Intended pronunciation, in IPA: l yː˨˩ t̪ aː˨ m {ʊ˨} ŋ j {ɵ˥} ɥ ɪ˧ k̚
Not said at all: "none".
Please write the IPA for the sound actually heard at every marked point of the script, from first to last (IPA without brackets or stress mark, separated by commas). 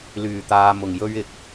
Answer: ʊ˨˩, ɵ˥